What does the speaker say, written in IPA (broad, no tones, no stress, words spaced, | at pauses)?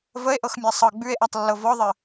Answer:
vəe̯ʔɤxmʲa sˤɤ ɡ͡bʉe̯ʔatˤlːɤ vɔðˤə